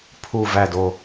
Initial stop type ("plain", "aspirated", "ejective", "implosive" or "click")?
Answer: aspirated